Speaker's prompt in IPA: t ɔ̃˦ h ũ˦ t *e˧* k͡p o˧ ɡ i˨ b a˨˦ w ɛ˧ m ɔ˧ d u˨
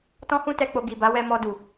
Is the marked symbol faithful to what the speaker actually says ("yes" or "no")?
no